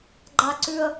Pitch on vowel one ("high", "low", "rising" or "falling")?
high